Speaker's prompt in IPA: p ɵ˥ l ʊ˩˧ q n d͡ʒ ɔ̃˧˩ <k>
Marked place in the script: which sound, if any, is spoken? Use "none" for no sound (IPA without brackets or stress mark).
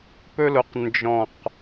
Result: q